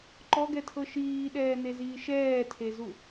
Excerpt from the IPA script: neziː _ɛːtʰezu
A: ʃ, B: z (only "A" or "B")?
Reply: A